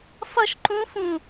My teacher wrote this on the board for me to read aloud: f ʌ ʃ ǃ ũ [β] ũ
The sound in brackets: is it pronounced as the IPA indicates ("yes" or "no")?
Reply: no